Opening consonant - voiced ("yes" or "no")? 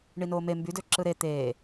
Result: yes